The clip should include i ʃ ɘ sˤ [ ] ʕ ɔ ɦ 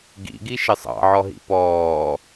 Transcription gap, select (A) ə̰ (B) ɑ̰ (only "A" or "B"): B